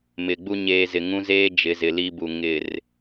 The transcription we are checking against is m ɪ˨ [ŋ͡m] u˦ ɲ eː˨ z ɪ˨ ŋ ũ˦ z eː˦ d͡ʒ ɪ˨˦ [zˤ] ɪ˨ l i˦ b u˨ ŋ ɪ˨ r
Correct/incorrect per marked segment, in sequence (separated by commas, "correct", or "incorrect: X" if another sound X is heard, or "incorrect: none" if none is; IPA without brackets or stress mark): incorrect: ɡ͡b, incorrect: z